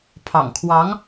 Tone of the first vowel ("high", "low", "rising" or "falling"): low